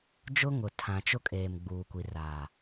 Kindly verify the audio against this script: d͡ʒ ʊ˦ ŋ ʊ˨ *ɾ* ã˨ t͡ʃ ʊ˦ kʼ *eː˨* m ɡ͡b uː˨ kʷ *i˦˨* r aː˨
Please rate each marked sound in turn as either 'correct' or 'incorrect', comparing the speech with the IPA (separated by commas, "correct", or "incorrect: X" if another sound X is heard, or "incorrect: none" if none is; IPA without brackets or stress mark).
incorrect: tʰ, correct, incorrect: i˨